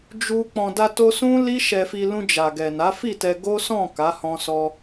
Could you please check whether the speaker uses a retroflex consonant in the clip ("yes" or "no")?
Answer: no